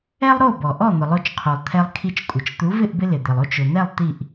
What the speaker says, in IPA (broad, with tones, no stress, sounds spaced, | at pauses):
ɛ˥ lˠ ɾ o˥˩ b ɔ˩ ʔ ɔ˥˩ n̪ ʊ˩ lˠ o˧ t͡ʃ qʰ o˩ lˠ t̪ʰ ɛ˧ lˠ kʰ i˧ t͡ʃ kʷʼ ɪ˩ t͡ʃ t̪ u˩˥ v ɪ˥˩ ʔ b ɪ˧ l ɪ˩ d̪ ɪ˩ lˠ o˥˩ t͡ʃ ʊ˩ n̪ ɛ˥˩ lˠ t̪ i˥˩ ʔ